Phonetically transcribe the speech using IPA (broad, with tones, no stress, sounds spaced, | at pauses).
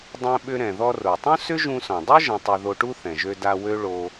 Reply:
dˤ ɛ̃˧ ɓ ʏ˧ ɾ ɛ̃˩ ð ɔ˧ r o˩ tˤ ũ˥ s ʏ˥ ʒ ũ˧ s ɔ̃˩ dˤ u˥ ʒ ɛ̃˧ tˤ ø˧ ð o˧ ʈ u˥ θ ɛ̃˩ ʒ ø˧ d a˧ w ø˥ ɭ o˧